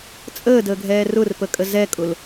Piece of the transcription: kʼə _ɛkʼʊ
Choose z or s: z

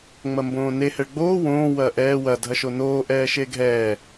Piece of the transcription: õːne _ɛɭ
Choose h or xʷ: h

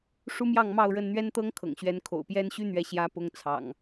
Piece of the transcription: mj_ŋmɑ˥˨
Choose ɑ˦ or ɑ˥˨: ɑ˥˨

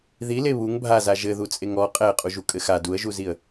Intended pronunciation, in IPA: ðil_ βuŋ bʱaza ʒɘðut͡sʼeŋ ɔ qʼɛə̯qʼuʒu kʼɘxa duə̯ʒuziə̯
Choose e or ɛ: e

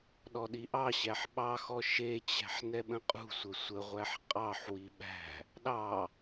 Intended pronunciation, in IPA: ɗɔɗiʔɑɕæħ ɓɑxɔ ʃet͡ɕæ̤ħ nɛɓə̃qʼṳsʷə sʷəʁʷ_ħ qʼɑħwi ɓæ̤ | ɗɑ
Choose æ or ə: æ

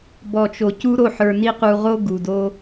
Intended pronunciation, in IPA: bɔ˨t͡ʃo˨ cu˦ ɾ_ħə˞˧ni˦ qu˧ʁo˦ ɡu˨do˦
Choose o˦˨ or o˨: o˦˨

